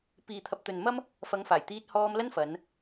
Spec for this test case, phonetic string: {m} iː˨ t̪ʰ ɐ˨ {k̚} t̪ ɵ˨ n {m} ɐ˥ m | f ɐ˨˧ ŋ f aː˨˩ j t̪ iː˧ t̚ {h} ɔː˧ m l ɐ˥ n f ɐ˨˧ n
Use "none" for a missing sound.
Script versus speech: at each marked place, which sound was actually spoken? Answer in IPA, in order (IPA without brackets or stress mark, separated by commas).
p, p̚, m, h